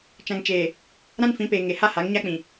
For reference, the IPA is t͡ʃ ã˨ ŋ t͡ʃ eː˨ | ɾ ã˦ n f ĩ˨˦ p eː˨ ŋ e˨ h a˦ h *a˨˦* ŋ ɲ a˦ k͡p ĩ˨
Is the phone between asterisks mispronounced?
no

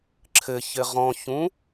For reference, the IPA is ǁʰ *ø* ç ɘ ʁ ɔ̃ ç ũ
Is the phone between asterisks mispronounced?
yes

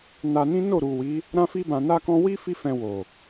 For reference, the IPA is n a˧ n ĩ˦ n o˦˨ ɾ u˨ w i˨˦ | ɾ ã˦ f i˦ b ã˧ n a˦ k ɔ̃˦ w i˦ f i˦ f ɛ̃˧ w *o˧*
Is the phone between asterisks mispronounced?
yes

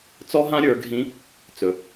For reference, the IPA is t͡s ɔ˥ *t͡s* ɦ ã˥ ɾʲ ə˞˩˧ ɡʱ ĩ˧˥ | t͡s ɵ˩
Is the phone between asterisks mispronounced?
yes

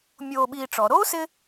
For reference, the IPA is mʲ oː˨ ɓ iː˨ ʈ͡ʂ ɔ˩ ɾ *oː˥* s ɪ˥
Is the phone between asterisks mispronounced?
no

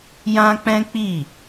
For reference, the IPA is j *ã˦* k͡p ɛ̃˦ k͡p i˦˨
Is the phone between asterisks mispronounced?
no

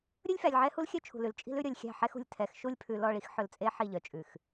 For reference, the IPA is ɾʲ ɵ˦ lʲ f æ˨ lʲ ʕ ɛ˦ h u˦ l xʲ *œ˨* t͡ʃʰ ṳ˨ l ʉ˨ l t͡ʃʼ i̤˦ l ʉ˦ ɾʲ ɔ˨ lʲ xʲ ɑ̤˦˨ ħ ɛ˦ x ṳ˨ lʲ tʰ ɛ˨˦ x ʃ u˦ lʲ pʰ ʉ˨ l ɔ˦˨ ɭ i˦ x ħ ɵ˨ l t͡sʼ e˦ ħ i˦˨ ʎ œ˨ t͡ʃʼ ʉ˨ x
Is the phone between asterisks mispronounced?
yes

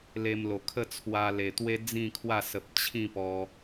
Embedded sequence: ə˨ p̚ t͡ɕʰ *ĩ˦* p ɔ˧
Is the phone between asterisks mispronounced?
yes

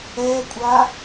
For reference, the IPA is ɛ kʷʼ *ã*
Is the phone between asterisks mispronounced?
yes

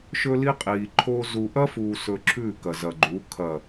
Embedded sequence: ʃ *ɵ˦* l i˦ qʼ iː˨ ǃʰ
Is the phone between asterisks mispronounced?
no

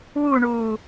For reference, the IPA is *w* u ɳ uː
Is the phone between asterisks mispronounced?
no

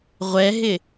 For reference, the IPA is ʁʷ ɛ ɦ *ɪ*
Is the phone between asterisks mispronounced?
no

